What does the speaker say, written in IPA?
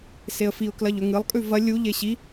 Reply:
s e ə̯ f i ʊ̯ k l ɐ ʎ ɵ ŋ ɨ lˠ kʼ ʉ v ɐ lʲ u ʎ e ɕ i

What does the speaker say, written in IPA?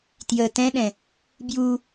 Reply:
t j ə t ɛ̃ ɗ ɛ̃ | b j u

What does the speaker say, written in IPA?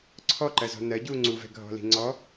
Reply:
ǀʰ ɔ ǃ ɜ z ɔ̤ n ɜ ɟ u ŋ͡ǀ u v ɛ̤ ɡʱ ɔ̤ l i̤ ŋ͡ǀ ɔ

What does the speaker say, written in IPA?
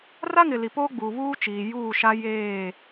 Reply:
r a˦ ŋ ɪ˨ l i˨ p oː˦ ɡ͡b uː˨ β uː˦ t͡ʃ iː˨ j uː˦˨ ʃ a˦ j eː˦˨

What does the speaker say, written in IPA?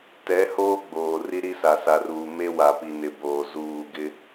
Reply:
t ɛ˨˦ h oː˦ ɡ͡b oː˨ r i˦ ɾ i˦ s a˨ s a˨ r uː˨ m e˦ w a˨ p i˨ n ɪ˨ b oː˨ z uː˦˨ ɡ ɪ˦

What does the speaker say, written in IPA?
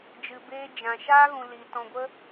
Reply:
d͡ʒ ɨ˨ b eː˧ d͡ʒ ã˨ ʃ aː˦ ɣ ũ˨ l iː˨ t ɔ̃˨ ɡʷ ə˧

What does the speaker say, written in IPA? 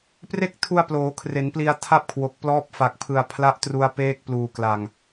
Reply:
p r e˥˩ k̚ tʰ u˧ a̯ p l oː˩˦ kʰ r e˩˦ n p l i˧ a̯ tʰ a˥˩ p̚ kʰ w o˨˩ k̚ p l ɔː˦˥ p̚ f a˨˩ k̚ pʰ ɯ˨˩ a̯ pʰ l a˦˥ ʔ t r u˧ a̯ p eː˦˥ k̚ p l uː˨˩ k l a˨˩ ŋ

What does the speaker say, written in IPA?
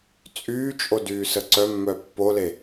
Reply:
t͡sʼ yː t͡ʃʼ o d yː s ə ǀ œ mː œ pː o l e

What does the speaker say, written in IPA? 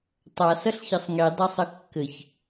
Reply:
tˤ a s ɐ ɬ ç ɐ sˤ ŋ i dˤ a sˤ ə kː ɘ ç

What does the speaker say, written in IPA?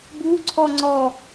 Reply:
b u ǀʰ ɔ ŋ͡ǀ ɔ

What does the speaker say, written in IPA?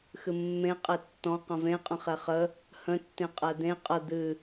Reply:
x ɨ mː ẽ qʼ e tː ɔ̃ q ə̃ v ẽ qʼ ə̃ χ ɛ χ ə | h ə̃ tː ẽ qʼ ɛ d̪ ẽ qʼ ə d̪ ɨ

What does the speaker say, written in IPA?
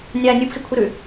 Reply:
nʲ aː nʲ uː p x i kʷʰ ɨ ɾ ʉ

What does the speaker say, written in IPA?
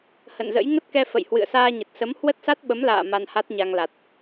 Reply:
h ə̰˧˨ n z ə̰˧˥ j ŋ ə˦˥ t̚ k ɛ˧ f ə̰˧˨ j h w ɨ̰˧˨ ə̯ s aː˧ ɲ ə˨˩ t̚ s ə˨˦ m h w ə˦˥ t̚ s a˦˥ t̚ ɓ ə˨˦ m l a̰ː˧˨ m a˧ n h a˦˥ t̚ ɲ a˧ ŋ l a˨˩ t̚

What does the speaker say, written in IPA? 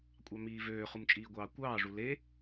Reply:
kʷʼ ɑ m iː v øː χ u m t͡ʃʼ iː ɡʷ ɑː kʷ ɑː ʐ u l e

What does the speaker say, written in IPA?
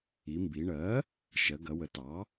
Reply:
i˩˧ m b i˩˧ ɳ ɜ˩˥ | ʃ ɜ˩˧ ɡ ɐ˩˧ w ə˩˧ t ɑ˩˥

